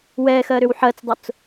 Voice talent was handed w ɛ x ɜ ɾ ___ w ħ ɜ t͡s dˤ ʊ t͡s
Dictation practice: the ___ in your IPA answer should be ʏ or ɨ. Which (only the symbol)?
ʏ